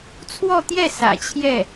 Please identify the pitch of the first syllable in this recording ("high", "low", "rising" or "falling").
falling